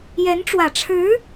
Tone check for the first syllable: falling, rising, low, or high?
rising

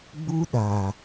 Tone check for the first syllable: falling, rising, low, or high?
high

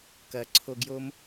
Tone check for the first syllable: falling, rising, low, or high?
low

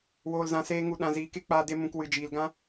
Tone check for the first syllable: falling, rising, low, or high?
low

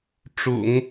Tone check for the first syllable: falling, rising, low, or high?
low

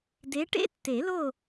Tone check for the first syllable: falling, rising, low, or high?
rising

